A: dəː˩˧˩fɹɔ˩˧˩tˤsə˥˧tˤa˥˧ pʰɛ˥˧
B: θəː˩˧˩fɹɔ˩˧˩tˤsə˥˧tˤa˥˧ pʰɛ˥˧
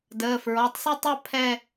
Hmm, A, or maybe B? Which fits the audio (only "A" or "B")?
A